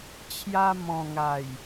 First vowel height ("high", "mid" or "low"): low